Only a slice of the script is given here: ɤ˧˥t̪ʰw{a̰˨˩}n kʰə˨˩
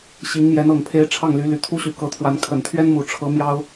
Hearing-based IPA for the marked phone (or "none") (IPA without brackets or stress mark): a˧˥